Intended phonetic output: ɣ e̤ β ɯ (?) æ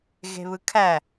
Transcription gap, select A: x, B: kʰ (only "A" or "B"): B